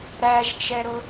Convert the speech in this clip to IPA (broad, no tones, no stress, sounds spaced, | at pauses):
ɾ æ ʒ t͡ʃ ɛ ɾ ʊ